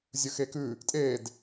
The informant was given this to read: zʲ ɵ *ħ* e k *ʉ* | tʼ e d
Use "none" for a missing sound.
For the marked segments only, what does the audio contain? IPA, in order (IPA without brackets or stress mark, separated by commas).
x, ʉ